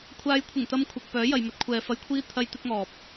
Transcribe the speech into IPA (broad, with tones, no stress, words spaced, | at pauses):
kʷʰaː˨˧jkʷʰɪ˨˩ŋt̪ɐ˧m kʷʰɐ˨k̚pœː˨˥ jɐ˨jmɵ˨˥t̚ kʷʰɛː˨fɐ˧jkʷʰiː˥ t̪ʰɐ˥jt̪ɪ˥k̚ŋɔː˨p̚